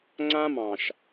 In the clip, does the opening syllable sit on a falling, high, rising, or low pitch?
high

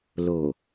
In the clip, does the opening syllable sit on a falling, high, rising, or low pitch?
low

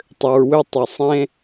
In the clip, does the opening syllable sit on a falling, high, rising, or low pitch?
low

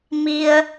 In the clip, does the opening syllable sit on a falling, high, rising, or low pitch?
high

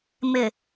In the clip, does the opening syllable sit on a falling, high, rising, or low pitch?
low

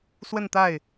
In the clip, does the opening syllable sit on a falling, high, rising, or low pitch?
falling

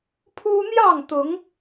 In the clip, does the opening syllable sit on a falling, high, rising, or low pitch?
high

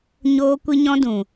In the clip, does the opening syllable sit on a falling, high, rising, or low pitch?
high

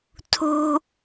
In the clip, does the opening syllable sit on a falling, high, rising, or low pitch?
high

